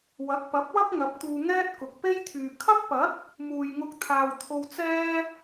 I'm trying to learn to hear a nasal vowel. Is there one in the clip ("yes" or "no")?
no